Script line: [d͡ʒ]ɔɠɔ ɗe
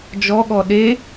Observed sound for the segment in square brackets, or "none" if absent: d͡ʒ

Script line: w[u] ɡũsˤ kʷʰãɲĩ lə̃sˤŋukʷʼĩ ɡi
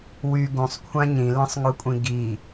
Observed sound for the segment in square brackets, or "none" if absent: y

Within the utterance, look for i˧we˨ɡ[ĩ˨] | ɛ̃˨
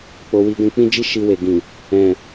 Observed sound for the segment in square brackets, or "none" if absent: ĩ˨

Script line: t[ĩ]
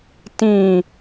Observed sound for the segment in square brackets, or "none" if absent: ĩ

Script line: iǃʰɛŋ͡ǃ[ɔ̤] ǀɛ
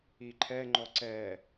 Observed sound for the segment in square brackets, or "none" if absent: ɔ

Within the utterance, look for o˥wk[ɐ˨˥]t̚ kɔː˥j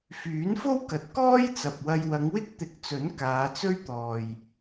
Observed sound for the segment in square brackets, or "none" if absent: ɐ˨˥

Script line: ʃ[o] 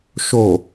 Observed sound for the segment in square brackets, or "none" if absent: o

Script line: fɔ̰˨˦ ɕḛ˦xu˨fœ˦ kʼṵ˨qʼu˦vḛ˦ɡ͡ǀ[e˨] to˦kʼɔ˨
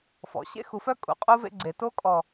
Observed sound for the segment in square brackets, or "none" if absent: e˨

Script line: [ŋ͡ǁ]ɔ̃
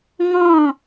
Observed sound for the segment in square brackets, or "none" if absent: ŋ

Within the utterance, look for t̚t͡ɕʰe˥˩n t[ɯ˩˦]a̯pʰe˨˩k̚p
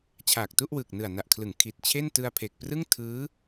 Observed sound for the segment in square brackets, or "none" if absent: ɯ˧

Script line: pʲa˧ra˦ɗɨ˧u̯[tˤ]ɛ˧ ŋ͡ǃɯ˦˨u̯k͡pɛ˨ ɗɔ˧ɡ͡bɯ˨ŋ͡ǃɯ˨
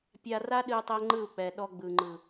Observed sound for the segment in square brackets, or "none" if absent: tˤ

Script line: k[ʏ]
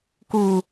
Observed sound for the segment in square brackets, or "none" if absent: u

